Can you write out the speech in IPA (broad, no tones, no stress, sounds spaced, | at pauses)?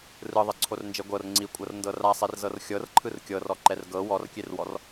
r ɯ ðˤ e ǀʰ o r n d͡ʒ e ɡʷ ɤ r ŋ͡ǀ i kʷʼ ɤ r n d ɤ r a sˤ i r z ɤ r xʲ ɤ r ǃʰ ɯ r kʲ ɤ r ɔ ǃ ɛ r ɡ ɤ w ɔ r kʲ e r w ɔ r